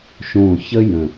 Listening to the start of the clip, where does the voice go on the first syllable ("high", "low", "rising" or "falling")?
low